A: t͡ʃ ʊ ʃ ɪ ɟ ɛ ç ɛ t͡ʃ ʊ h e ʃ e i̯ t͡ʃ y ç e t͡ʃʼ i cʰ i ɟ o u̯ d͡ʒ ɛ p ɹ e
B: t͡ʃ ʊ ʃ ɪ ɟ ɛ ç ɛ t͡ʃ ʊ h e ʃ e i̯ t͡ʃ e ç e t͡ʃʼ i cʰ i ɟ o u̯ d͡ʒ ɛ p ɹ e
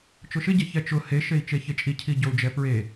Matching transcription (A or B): B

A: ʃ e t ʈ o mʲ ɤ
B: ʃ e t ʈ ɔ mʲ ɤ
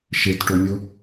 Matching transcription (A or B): A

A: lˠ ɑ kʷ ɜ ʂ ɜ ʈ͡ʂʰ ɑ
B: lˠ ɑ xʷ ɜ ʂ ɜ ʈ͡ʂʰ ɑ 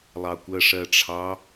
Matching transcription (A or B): A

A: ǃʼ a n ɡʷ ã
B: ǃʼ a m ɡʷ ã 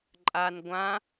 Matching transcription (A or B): A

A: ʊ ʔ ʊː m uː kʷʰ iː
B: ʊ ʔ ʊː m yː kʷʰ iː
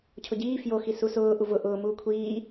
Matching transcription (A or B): A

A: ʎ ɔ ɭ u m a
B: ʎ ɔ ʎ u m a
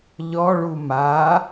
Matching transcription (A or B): A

